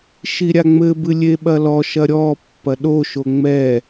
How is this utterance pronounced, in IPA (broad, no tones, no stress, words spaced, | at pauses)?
ʃiɾʲaŋ͡mɘbɨ lʲeɓɐlɔʃɐ ɾʲɔ pːɐɗoʃo ŋ͡mɛ